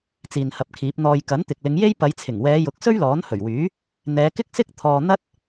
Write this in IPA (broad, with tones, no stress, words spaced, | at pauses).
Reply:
t͡siː˨nhɐ˨p̚kʰiː˨˥p̚ n̪ɔː˨jkɐ˨˥n t̪ɪ˨k̚lɪ˨˧ŋje˥j pɐ˨˧jt͡sʰɪ˨˩ŋwɛː˨˧jʊ˨˥k̚ sɵ˥ɥlɔː˨˥nhɵ˨˩ɥwyː˨˥ | n̪ɛː˨˧kɪ˥k̚sɪ˥k̚ t̪ʰɔː˧ n̪ɐ˥t̚